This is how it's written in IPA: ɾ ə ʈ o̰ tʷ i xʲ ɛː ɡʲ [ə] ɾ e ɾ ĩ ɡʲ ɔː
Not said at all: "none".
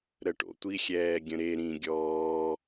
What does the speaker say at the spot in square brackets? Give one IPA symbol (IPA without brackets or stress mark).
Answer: ə̃